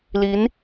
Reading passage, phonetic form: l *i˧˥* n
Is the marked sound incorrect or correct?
correct